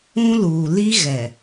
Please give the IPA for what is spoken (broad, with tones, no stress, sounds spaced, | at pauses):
ũ˦ l uː˨ l i˦ ɣ ɛ˨